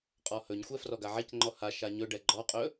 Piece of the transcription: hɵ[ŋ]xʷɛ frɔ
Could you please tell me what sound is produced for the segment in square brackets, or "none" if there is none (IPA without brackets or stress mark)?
ɲ